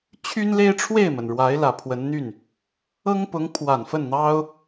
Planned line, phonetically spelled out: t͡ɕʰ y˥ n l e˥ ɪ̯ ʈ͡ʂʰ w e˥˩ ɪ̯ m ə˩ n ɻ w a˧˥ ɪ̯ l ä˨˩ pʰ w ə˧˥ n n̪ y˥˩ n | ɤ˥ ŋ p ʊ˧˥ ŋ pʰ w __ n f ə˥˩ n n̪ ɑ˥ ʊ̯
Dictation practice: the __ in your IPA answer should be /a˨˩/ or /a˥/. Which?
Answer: a˨˩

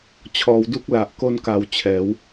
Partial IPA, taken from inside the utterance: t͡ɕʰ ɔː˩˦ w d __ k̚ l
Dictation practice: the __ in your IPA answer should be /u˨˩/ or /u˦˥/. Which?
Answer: u˦˥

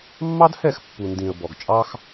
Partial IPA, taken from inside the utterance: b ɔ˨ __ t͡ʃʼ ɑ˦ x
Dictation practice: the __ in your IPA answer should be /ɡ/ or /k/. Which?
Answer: ɡ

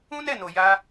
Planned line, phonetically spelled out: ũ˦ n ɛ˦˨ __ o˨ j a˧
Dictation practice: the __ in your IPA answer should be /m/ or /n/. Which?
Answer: n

